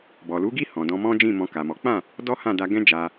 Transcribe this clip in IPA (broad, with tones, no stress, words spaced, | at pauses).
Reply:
bɔ˨lu˨˦ɡi˦˨ hɔ̃˨dɔ̃˧ mɔ̃˦d͡ʒĩ˦˨ mɔ̃˧ka˨mɔ˨˦ k͡pã˦˨ | dɔ˦hã˦˨ da˧ ɡɛ̃˦d͡ʒa˧